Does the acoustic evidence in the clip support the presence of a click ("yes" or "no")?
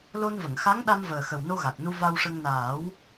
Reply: no